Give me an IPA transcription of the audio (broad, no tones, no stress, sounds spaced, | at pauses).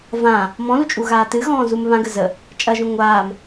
v ã | m ɔ̃ l u t͡ʃʼ u ɣ aː t ɨ ɣ ɔ̃ː z u m β ã ɡ ə z ə | t͡ʃʼ ɐ ʒ ũ ŋʷ aː m